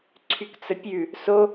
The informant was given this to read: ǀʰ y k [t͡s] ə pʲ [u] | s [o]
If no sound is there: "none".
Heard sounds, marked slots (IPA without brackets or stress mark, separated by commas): t͡s, ʉ, o